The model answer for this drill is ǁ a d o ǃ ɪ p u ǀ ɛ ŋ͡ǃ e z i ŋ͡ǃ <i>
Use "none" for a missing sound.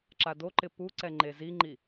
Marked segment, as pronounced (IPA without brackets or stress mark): i